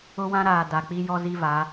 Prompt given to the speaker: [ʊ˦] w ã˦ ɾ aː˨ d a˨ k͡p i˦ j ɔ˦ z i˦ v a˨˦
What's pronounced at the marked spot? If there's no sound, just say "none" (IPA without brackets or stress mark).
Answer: ʊ˦